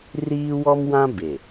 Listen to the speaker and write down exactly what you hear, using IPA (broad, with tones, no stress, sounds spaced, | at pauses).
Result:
r iː˦ w ɔ˦ m w ã˦ b e˨